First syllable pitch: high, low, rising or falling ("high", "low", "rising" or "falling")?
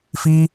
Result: high